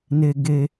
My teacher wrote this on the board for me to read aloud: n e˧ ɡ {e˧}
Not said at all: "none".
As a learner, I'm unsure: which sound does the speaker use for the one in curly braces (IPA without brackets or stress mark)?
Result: e˧